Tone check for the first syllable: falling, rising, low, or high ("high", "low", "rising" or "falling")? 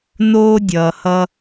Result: high